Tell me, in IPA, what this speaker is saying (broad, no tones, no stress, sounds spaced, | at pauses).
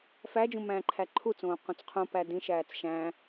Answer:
f æ d͡ʒ ũ m æ̃ː ǃʰ æ ǃʰ u t͡s õː q ũ t͡s qʰ õ p æ d ĩ ʃ æː t͡s ʃ æ̃